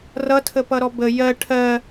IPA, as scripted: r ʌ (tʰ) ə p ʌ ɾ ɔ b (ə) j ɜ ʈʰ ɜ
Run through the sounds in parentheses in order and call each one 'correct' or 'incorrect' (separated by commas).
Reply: correct, correct